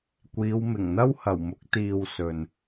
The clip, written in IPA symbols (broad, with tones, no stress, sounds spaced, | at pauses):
kʷ iː˨˧ w m ɪ˨˩ ŋ n̪ ɐ˥ w h ɐ˨˩ w m ʊ˨˥ k̚ t̪ iː˨ w s ɵ˨ n